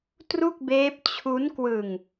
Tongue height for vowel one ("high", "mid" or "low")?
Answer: high